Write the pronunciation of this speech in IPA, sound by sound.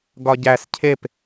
ɡ ɒ ɟ æ s cʰ e p

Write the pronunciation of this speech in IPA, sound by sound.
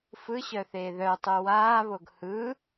f ɯ ɕ œ θ eː ð œ tˤ u w aː β o ɡ h ɯ

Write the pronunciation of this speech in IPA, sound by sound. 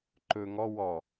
ǃ ɵ ŋ ɔ w ɔ

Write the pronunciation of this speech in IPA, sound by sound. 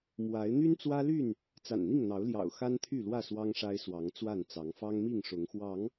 m w a˨˦ ɪ̯ n̪ y˦ n t͡s w ä˦ l y˥˨ n | t͡s a̰˨˩ n n̪ i˥˨ ŋ n̪ ɑ˨˦ ʊ̯ l j ɑ̰˨˩ ʊ̯ x a˦ n t̪ʰ y˥˨ l w ä˥˨ s w ɑ˦ ŋ ʂ a˦ ɪ̯ s w ɑ˨˦ ŋ t͡s w a˥˨ n t͡s ɑ˨˦ ŋ f ɑ˦ ŋ m i˥˨ ŋ ʂ ʊ˨˦ ŋ x w ɑ˨˦ ŋ

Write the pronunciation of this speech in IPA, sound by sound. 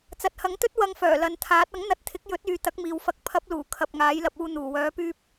t͡s ɐ˨ t̚ h ɐ˨˥ ŋ t̪ ɵ˥ t̚ w ɐ˧ ŋ f œː˨˩ l ɐ˨ n t̪ʰ aː˨˥ t̚ ɐ˨˥ ŋ n̪ ɐ˧ t̚ t̪ʰ ɪ˨˥ k̚ j ɵ˨˥ t̚ yː˨ t̪ ɐ˨˥ k̚ m iː˨ w f ɐ˧ k̚ pʰ ɐ˨˥ p̚ l uː˨˩ kʰ ɐ˨ p̚ ŋ aː˨˥ j l ɐ˧ p̚ uː˧ n̪ uː˨˩ w œː˨˥ p yː˧ p̚

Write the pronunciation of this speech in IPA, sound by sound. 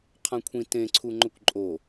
qʰ ã kʷʰ ĩ t ẽ ǀʰ u ŋ͡ǃ ɵ kʷ ǃʼ o

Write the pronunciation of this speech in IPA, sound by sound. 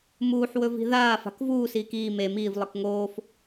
m uː ħ w ɵ v i̤ ð aː f a̤ k v uː s iː k iː m e m iː v lˠ ɨ k ŋ oː f

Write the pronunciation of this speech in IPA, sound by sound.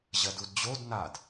ʑ ɐ d u d d͡ʑ o d n a d

